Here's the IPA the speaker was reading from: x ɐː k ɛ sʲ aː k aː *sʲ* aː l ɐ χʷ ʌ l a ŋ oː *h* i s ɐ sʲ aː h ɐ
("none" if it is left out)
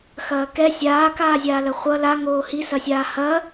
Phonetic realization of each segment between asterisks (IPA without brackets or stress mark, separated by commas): zʲ, h